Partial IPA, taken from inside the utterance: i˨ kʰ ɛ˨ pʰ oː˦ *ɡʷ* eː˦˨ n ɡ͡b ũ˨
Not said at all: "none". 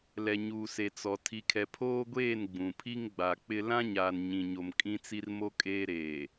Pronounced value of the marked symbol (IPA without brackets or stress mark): ɡʷ